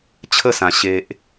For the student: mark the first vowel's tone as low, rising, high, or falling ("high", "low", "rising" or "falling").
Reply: falling